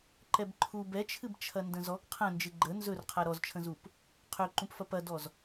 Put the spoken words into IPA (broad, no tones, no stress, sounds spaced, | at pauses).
ǃ ɛ b ǃʰ u b ɛ t͡ʃʰ ɨ b t͡ʃʰ ɐ n d ə̃ z ɔ ɡ qʰ ə̃ n d͡ʒ ɨ ɡ͡ǃ ə n z ɵ r qʰ a ɾ ɔ z t͡ʃʰ ə̃ z u p | qʰ ø ǃ ũ p f ɐ p ɐ d ɔ z